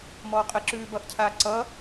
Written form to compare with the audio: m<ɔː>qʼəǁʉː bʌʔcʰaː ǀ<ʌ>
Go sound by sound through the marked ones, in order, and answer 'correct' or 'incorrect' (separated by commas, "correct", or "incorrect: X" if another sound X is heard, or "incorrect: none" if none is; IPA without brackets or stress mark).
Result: correct, correct